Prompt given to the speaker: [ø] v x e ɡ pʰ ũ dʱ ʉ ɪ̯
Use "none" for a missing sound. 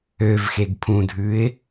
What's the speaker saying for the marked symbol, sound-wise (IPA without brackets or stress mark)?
ø